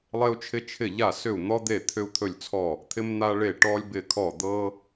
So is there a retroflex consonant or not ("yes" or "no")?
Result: yes